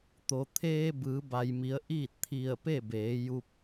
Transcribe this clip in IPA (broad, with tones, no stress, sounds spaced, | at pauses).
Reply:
t̪ o˩ t̪ʰ eː˧ b ɯː˩˧ b a˩ j m i˩˧ ə̯ ʔ iː˥˨ t̚ t̪ʰ i˧˩ ə̯ p e˥˨ b eː˩˧ j u˧ p̚